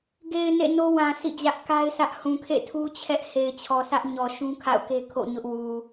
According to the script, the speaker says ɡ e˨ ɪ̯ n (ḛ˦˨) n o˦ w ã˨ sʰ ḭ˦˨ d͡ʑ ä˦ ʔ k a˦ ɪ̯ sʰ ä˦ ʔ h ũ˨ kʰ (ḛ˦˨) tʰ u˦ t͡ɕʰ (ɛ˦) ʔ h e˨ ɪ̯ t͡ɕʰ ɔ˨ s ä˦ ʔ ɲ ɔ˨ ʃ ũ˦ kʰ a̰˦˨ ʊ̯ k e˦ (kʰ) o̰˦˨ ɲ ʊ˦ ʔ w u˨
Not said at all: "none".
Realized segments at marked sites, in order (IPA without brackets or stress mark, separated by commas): ḛ˦˨, ḛ˦˨, ɛ˦, kʰ